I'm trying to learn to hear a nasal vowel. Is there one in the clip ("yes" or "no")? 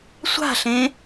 yes